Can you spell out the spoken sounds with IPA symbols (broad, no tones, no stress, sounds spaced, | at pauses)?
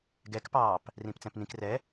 ɡ ɛ k p ɑː p | r ĩ p t͡s ɛ̃ p n ĩ k r ɛ